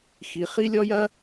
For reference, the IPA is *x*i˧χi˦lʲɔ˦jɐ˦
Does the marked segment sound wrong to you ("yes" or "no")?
no